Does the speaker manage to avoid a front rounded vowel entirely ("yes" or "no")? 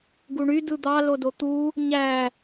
no